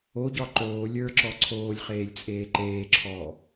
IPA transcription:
oɟɒ ǃoː lʲə˞ǁɔ ǀʰoːlʲχeːlʲt͡sʼeː ǃeːǁʰɔː

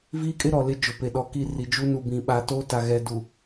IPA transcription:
viː˦kʼɪ˦ ɾɔ˨lɪ˦ d͡ʒʊ˨pe˨ɗɔ˨ki˦˨ ri˨d͡ʒu˦ nu˨bĩ˨ɓa˨toː˦ ta˨ɣɛ˨du˨

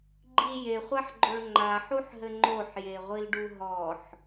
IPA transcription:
ɡ͡ǃi jeχʷaħɡ͡ǃoɭ ŋ͡ǃaħuħɦɘ ŋ͡ǃoħjeʁʷilɖu ɦɔħ

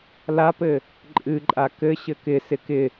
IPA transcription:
lapɘ | ǃʼɨǃʼa kɘ ɕɘkɪ sɪkɪ

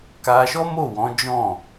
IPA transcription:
ka˧ʃɔ˦mo˦˨wɔ̃˨˦ d͡ʒɔ̃˦˨

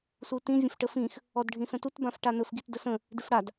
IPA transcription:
sutĩ vʲə̃fʈəfĩx | ɔdɖʱĩsə̃tut bãfʈanɵf ɡitdəsə̃ | dɪfɽad

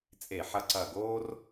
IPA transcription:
t͡sʼe˧˩˧ħɐ˧ǀɐ˧˩ɡoː˥r

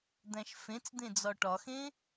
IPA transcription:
d̪æ̃ʃfẽt͡sd̪ẽ d͡zɒʈɒxẽ

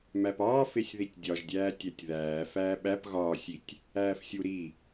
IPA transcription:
mæpɒː fesʲðitʲdʲɒʒdʲæː tʲætʲðæː fæːɓæp ɣɒːsʲitʲ | æːfsʲuɾi

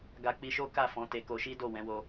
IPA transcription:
ɡa˧k͡pi˧ʃo˦ ka˦˨fɔ̃˨˦te˧ ko˧ʃi˦do˦˨ wɛ̃˨˦wo˧

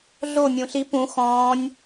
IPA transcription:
ɮo mʲũɬi pũ xɔ̃ːnʲ

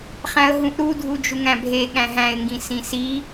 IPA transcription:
χæ̃ə̯ɦũʔɾu dʱud͡ʒuŋæ̃bʱe ɠæ̃ɦæ̃ɪ̯ŋɡĩ sĩsi

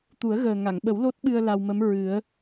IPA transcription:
t̪u˨˩˦ə̯ɣəː˨˩ ŋa˨˩˨ŋɓə˨˩˦w lo˦˥t̚ɓɨ˧ə̯ la˧wmə˧˥m ɹɨ˨˩˦ə̯

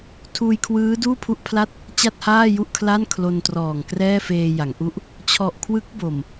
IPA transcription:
tʰuː˧jkʰwɯː˦˥ duː˥˩pʰu˥˩ʔpʰla˥˩t̚ | t͡ɕa˥˩t̚haː˥˩ju˥˩ʔ kʰla˥˩nkʰlo˧ntrɔː˨˩ŋ krɛː˥˩feː˧ja˩˦ŋ ʔu˦˥ʔ | t͡ɕʰɔ˨˩ʔ kʰwɯ˦˥k̚ bo˨˩m

